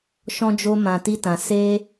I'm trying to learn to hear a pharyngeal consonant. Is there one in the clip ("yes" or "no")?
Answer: no